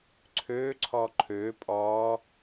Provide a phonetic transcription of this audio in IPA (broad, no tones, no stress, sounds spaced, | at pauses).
ǀʰ øː ǀʰ ɔː ǃʰ øː pʼ ɔ